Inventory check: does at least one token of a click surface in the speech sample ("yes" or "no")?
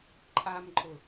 yes